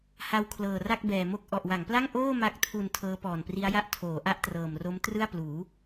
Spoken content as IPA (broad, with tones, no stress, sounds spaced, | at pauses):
h a˧ w kʰ l ɤː˨˩ r a˥˩ k̚ b ɛː˨˩ m o˦˥ k̚ ʔ ɔ˨˩ ʔ w a˩˦ ŋ p l a˥˩ ŋ ʔ oː˥˩ m a˦˥ k̚ tʰ u˧ n tʰ ɤː˦˥ p ɔː˨˩ n p r i˦˥ a̯ j a˥˩ ʔ tʰ oː˩˦ ʔ a˦˥ ʔ t r ɤː˨˩ m r o˦˥ m t r ɯ˥˩ a̯ p l uː˩˦